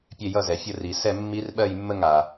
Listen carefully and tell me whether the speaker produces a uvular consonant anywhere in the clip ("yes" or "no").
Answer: no